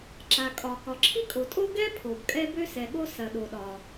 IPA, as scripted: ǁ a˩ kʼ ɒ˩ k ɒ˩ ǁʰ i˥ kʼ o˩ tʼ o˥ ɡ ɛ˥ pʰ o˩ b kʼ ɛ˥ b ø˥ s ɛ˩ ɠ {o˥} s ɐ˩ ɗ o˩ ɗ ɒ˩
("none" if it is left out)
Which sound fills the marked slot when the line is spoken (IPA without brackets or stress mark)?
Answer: o˥